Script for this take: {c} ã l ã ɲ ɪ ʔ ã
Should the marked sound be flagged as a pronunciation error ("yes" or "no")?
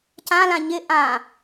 no